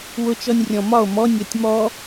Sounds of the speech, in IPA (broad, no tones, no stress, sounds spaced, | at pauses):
w ʊ t͡ʃ ɔ nʲ rʲ ɔ̃ m ɒ o̯ m ɔ nʲ ɔ tʲ m ɔ